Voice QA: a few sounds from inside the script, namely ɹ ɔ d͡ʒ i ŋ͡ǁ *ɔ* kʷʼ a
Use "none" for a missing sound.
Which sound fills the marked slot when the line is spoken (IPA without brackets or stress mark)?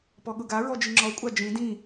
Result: ɔ